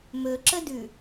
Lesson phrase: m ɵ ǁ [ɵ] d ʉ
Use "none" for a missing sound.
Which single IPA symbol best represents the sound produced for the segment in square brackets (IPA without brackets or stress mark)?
ə